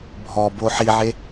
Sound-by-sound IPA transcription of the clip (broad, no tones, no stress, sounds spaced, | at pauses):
bʱ ɔ b o ħ i ʕ e